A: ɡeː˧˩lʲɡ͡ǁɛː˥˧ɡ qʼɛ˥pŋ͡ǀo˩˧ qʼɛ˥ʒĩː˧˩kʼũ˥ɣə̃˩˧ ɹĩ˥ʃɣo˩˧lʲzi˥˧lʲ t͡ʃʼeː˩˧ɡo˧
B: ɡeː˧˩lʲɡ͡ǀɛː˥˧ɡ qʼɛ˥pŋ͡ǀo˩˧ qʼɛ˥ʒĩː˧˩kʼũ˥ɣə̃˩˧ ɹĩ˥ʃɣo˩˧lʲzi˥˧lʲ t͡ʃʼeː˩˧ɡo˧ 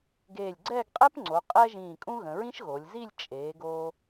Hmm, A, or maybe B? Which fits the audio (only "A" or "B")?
B